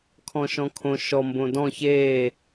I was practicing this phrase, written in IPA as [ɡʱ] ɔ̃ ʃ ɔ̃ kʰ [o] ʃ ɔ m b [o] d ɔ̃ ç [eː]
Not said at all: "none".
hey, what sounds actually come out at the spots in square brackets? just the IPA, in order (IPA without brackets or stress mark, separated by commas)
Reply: kʰ, õ, õ, eː